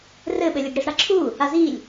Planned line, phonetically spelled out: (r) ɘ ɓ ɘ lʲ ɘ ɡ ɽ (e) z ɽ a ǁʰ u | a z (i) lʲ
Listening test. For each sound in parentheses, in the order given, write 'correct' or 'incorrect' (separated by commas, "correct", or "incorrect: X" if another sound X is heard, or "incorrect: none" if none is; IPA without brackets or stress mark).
correct, incorrect: i, correct